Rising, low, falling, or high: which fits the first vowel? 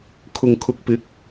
low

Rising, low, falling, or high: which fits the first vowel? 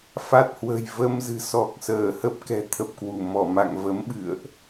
low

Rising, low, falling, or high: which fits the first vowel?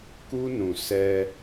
high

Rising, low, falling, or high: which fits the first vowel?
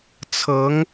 rising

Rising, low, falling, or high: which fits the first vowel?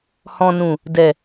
low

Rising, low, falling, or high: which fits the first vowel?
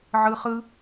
high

